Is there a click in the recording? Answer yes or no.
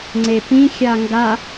yes